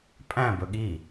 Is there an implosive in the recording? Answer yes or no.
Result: yes